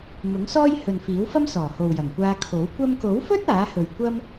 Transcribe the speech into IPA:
m ʊ˨˥ ŋ s ɔː˥ j h ɵ˨ n f iː˨˥ w f ɐ˥ m s ɔː˨˩ h o˨ w j ɐ˨˩ ŋ kʷ aː˧ kʰ o˨˥ w kʷ ɐ˧ m k o˨˥ w f ɵ˥ t̚ aː˨˥ h ɵ˨ ɥ kʷ ɐ˥ m

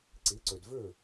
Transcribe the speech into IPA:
ǀ i˩˥ ǀ ø˩ d v ø˥˩

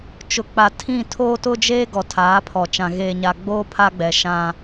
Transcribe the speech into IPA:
t͡ʃ ʊ˨ k͡p a˨ tʰ ĩ˦˨ tʰ oː˦ t ʊ˦ d͡ʒ eː˦ ɡ ɔ˨ tʰ aː˨˦ pʰ ɔ˨ t͡ʃ ã˨ ɣ eː˨ ɲ a˨ ɡ͡b oː˦ pʰ a˦ ɡ͡b ɛ˨ ʃ ã˦

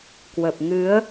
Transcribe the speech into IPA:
k w ə˨˩ p̚ ŋ ɨ˨˦ ə̯

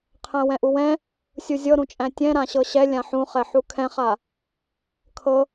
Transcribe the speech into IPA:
qʰ æ̃ w ɛ̃ ʔ u w ɛ̃ | sʲ u zʲ ɤ ɾ ũ t͡ʃʼ æ̃ tʲ ɛ̃ ɾ ã ɕ ɤ ɕ ɛ lʲ ã ħ ũ χ ɛ ħ u kʰ ɛ̃ χ a | kʰ ɤ

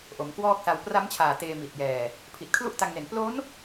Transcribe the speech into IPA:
ʔ o˩˦ m k w ɔː˥˩ k̚ s a˧ w p r a˦˥ m t͡ɕʰ aː˨˩ t eː˧ m i˨˩ t̚ j ɛː˨˩ | pʰ i˨˩ t̚ kʰ l u˥˩ ʔ t a˧ ŋ n e˨˩ n p l o˦˥ n

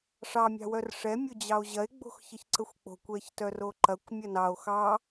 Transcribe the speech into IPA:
ʂ ɑ mʲ ɑ̤ w œ r ʂ ɛ mʲ o d͡ʑ ɑ o̯ ʑ ɐ e̯ ɡ͡b o̤ x ç ə ç ǀ ə xʷ k͡p o̤ kʷ ɛ ç t œ r o ǃ ɐ kʷ mʲ ɐ n ɑ o̯ x ɑ

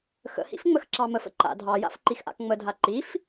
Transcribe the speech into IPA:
x ə̰ h ḭ f ŋ͡m ə x ǁ ɑ m ə f ə̰ ǃ a̰ dʱ ɑ j a̰ f ǃ i x ʔ a̰ k ŋ͡m ə dʱ a ǃ i f

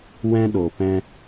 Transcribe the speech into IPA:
w ɛ̃˧ ɗ o˨ p ɛ̃˧

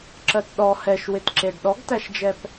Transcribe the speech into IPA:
ǁ ɜ t ɗ ɔ h ɛ ʃ w ɪ t ǁ e ɖ ɗ ɔ ɡ t æ ʃ d͡ʒ ɛ p

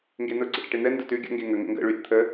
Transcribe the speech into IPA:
ŋ ɡ e n ʊ ɡ͡ǀ ə̰ ʈ ə ʈ e n̪ ɛ n d ʊ t ʉ ɡʲ ə̰ ŋ ɡ e ŋ ə ŋ ə̰ ŋ ɡ ə̰ ɭ ʉ ɾʲ ə̰ t̪ʰ ə

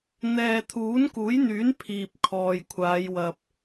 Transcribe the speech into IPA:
n̪ ɛː˨ t̪ʰ uː˨˥ n k uː˨˥ j n̪ yː˨˥ n pʰ iː˨ p̚ kʰ ɔː˨ j kʷʰ aː˨˧ j w ɐ˨ p̚

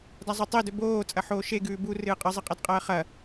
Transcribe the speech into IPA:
d a zˤ ɵ tˤ e d ɵ b oː t͡sʼ ɐ ħ oː ʃ e ɡ ʉː b u r ɨː qʼ ɨ zˤ ɨ qʼ e d qʼ ɐː χ ɐ

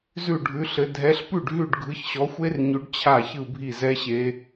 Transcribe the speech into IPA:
z ʉ˥˩ ɖʱ ʉ˨˥ ɬ ɘ˨˥ dʱ ɛ˨˥ ɬ p ʉ˥˩ ɖ ɦ ʉ˥˩ ɖ ɡʱ ɯ˨˥ ç ɕ ɔ˨˥ xʷ e˦˥ r ɲ ʉ˨˥ ɖ t͡ɕʰ a˥˩ ç ɯ˥˩ bʱ i˥˩ z ɛ˦˥ ɕ e˦˥

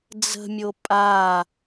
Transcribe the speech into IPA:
d͡z ə̤ mʲ o pʼ a

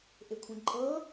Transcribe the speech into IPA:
ʔ e kʷʰ ĩ ǃʼ ɤ

